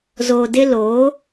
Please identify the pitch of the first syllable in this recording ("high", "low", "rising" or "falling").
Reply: low